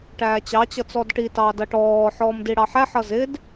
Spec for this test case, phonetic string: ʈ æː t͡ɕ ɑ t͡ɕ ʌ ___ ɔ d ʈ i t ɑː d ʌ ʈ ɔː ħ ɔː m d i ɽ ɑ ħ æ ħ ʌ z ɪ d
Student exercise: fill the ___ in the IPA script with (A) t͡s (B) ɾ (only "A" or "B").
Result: A